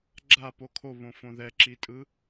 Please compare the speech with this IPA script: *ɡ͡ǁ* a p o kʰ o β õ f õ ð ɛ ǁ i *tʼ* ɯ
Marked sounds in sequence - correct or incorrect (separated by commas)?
correct, correct